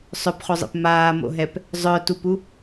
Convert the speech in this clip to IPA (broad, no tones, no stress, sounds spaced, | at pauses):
sˤ œ p χ o zˤ ḛ p m aː m o̰ ɦ ɛ p | zˤ œ t u p u